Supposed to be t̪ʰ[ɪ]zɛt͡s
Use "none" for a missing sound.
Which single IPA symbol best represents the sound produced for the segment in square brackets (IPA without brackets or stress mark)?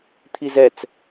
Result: i